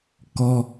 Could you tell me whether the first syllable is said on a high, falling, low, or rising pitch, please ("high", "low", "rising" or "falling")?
high